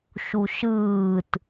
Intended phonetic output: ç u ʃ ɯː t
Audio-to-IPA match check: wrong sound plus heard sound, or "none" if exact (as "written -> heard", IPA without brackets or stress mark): ç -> ʃ